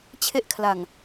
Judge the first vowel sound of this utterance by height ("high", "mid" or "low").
mid